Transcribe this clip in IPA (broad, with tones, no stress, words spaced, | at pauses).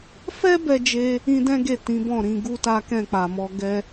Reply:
fɛ˦ bɛ˦d͡ʒe˦ | ĩ˦dɛ̃˦ ɡe˦˨ tĩ˨˦bɔ̃˦˨ɾĩ˨˦ ɡu˦ta˦ kɛ̃˦˨k͡pa˨mɔ˧ ɡɛ˧